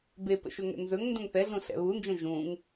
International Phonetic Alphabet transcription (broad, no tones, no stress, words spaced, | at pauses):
bepə̰ʃɵ ŋɛ̰nzɵŋ ndə̃ŋθɛɮũ ɬɛ̰βund͡ʒə̃ ʒũŋ